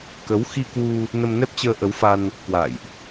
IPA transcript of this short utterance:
k ə˨˦ w x i˧ k w u˧ | n ə˧ m n ɛ˦˥ p̚ t͡ɕ əː˧ ʔ ə˨˦ w f a˧ n | k w a̰ː˧˨ j ʔ

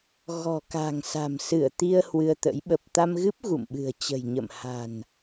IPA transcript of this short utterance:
ɣ ɔ̤˨˩ k a̤˨˩ ŋ s a̤˨˩ m s ɨ˧˩ ə̯ t̪ i˧ ə̯ h w ɨ˧ ə̯ t̪ ə̰˧˥ j ɓ ə˨˩ p̚ t̪ a˧ m ɣ ɨ˦˥ p̚ ɣ ṵ˧˨ m ɓ ɨ̤˨˩ ə̯ t͡ɕ ə̤˨˩ j ɲ ə̰˧˨ m h a̤˨˩ n

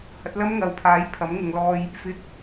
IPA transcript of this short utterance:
h ɐ˨˥ t̚ l ɐ˥ m ŋ ɐ˨ w pʰ aː˨˥ j pʰ ɐ˨˥ m ŋ ʊ˨˧ ŋ l ɔː˧ j | f ɪ˨˥ k̚

